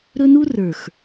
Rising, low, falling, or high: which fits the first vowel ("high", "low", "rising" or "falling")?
high